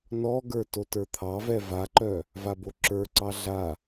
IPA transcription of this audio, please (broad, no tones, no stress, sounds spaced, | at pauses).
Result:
n ɔ ɡ ə˞ t o t ə˞ t̪ʰ ɑ v ɛ v a ǃ œ | v a b o ǁ ə˞ ǀ ɑ ɮ a